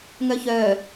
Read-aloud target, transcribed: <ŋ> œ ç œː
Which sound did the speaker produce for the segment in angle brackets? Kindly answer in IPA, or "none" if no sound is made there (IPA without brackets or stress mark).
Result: ŋ